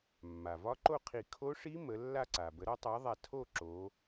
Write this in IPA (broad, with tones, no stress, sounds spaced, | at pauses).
mː a˩ v ɒ˦˥ ǃ o˥˧ qʰ i˧˩ kʰ o˦˥ ʂ i˦˥ m ə˨˦ lː a˥˧ ǀ a˩ b ə˨˩˦ ɾ ɒ˨˦ tˤ a˨˦ ðˤ a˧˩ tʰ o˥˧ ǁ o˨˦